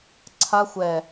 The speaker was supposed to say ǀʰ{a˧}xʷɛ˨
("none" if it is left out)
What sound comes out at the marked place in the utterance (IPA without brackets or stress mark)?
a˧